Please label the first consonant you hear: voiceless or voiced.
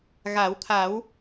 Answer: voiced